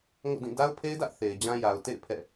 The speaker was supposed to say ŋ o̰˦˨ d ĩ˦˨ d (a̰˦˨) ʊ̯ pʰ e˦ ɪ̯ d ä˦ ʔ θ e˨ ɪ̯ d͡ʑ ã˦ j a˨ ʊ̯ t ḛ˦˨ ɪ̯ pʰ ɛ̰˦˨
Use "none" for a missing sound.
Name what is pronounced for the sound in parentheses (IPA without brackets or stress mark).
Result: a˦